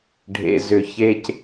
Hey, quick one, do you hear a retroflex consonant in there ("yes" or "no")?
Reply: yes